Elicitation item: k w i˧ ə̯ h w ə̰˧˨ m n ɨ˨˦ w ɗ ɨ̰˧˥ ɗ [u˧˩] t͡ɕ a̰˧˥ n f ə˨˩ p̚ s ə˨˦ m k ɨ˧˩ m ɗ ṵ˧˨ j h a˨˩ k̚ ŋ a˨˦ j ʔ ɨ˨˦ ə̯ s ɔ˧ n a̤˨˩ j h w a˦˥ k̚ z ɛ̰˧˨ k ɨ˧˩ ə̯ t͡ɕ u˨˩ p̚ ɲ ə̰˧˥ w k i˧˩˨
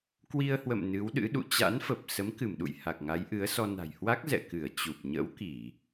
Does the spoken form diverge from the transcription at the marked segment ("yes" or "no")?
yes